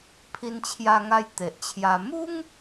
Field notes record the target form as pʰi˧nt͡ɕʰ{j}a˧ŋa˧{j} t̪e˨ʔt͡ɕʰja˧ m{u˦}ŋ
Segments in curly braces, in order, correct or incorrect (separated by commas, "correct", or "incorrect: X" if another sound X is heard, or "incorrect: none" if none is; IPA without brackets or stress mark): correct, correct, correct